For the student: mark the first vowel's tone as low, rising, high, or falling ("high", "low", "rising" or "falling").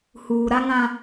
low